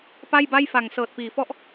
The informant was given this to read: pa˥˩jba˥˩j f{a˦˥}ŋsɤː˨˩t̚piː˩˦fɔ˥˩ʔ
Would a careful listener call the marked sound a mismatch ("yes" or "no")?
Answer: yes